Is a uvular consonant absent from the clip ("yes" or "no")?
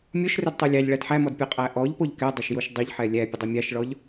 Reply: no